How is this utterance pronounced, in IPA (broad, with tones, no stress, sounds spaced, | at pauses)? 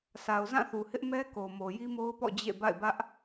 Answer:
s a˨ ʊ̯ z ã˦˨ θ u˨ h ɪ˦ ʔ m ɛ˦ k o˨ m o˨ j i˦ m o˦ ʊ̯ p ɔ̰˦˨ d͡ʑ ḛ˦˨ b a̰˦˨ ɪ̯ b ä˦ ʔ